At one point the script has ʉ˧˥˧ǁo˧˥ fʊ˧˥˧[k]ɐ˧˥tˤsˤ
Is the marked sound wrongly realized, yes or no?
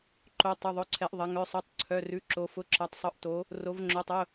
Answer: yes